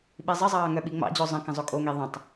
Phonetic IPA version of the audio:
ɓ i zˤ ə zˤ ɑː ŋ œ ɓ i ŋ͡m ɑ̰ d͡ʑ o zˤ ə̃ k ə̃ zˤ o kʼ o ŋ i ðˤ ə̃ tˤ

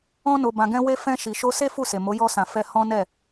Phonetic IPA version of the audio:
ɔ̃˧ n o˨ b ã˨ ɡ ɛ̃˧ w e˧ f ɛ̃˧ ʃ i˨ ʃ o˧ s e˦ f u˦˨ s e˨ m o˨˦ j ɔ˧ s ã˨ f ɛ˧ h ɔ̃˦ n ɛ˦˨

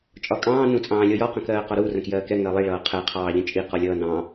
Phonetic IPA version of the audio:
t͡ʃʼ ɒ kʼ ɑ̃ː n ũ t͡sʼ ɑ̃ː lʲ ɔ j ɒ q ə̃ k ɜː q ɒ ɾ u r ə̃ k j ɜː k ɛ ŋ ɜ lˠ i ɭ ʌː qʰ ɛ qʰ ɑː ʎ ə̃ t͡ʃʼ i q ɒ lʲ ʌː n ɑ̃

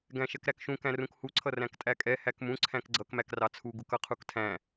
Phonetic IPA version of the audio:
ɡ æ̃ ʃ ɛ k ɾ æ k ʃ ũ k æ̃ r ũ k h u ǀʰ ʌ r æ̃ k tʼ æ kʼ ɛ h æ k m ũ ǀʰ æ̃ k ɡ͡ǀ ʌ k m æ k r ɑ t͡sʰ u ɡ u k ʌ qʰ u k tʰ æ̃

